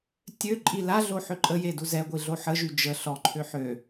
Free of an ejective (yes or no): no